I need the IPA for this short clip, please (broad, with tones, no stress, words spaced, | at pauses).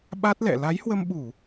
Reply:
ɓa˦˥t̚lɛ̰˧˨ la˨˦jhwə˧mɓu˧˩˨